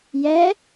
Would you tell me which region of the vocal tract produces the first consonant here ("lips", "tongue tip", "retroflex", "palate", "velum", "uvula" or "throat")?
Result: palate